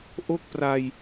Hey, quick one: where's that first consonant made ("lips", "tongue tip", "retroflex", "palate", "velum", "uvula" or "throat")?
throat